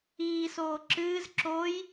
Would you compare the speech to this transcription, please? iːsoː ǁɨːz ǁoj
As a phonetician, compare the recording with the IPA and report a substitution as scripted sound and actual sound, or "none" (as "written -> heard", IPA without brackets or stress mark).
none